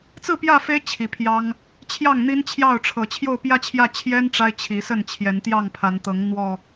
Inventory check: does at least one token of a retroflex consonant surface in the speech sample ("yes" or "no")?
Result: yes